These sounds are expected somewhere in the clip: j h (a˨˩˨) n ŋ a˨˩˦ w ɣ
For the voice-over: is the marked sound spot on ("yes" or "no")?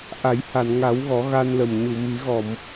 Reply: yes